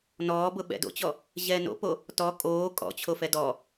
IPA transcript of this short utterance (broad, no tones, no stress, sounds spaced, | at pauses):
n ɔː b ʊ ɓ ɛ̰ d o̰ t͡ɕ ɔ | ʑ ɛː n o̰ p o | t ɔ kʼ oː kʼ ɔ̰ t͡ɕʰ o f ɛ d ɔ